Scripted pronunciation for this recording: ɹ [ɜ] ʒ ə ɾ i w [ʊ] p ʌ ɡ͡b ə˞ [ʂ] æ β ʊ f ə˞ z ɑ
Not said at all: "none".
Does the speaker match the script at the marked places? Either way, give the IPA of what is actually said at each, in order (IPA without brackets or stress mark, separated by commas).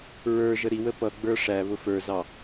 ə˞, ə, ʂ